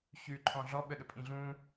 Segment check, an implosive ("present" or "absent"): present